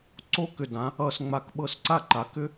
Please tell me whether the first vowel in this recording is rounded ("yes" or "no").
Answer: yes